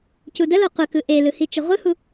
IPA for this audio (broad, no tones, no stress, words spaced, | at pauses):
cudəlo qʷəkɯ ʔelɯhi t͡ʃəʁʷɯhu